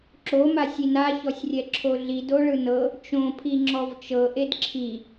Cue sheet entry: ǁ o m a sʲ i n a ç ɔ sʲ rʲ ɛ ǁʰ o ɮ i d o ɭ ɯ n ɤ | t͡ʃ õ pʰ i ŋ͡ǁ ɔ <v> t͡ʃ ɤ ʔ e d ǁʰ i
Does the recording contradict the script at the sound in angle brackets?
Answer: no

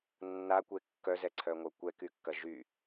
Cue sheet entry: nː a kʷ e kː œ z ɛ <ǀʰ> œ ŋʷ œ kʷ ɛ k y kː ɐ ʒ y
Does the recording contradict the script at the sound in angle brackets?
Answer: no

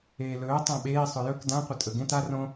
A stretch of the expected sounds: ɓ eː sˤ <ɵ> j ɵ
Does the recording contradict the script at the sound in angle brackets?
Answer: no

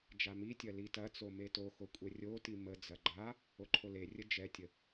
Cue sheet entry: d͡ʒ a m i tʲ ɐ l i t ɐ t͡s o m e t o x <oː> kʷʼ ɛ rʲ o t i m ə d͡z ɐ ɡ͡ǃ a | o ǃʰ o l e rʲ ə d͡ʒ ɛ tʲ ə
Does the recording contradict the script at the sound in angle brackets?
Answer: yes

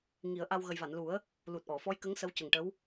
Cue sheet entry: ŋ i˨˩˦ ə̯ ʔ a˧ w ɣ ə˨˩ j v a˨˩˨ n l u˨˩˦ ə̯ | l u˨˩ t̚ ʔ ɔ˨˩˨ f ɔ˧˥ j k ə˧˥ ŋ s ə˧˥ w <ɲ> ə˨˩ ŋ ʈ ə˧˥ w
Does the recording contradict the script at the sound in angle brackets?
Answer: yes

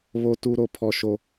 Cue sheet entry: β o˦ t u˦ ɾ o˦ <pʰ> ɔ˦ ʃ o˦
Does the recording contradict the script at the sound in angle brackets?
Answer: no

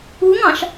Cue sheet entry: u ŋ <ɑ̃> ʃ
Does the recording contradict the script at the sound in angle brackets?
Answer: no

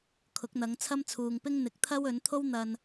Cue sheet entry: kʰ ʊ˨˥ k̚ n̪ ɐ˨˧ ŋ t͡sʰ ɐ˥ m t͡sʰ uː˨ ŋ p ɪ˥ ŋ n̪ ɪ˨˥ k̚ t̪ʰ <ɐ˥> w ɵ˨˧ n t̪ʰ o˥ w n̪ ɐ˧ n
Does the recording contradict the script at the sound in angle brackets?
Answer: no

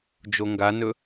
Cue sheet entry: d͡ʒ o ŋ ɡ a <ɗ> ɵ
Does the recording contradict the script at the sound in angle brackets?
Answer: yes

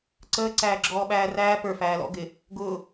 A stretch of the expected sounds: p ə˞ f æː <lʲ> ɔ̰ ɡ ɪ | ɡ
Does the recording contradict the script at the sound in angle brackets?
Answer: yes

